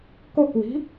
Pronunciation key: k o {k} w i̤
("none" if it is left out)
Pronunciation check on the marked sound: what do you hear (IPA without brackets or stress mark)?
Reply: k